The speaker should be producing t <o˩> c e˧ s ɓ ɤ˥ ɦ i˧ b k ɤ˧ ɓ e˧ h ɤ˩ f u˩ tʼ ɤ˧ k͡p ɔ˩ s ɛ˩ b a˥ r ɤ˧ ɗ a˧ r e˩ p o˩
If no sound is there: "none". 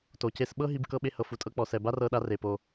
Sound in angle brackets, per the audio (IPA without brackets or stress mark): o˩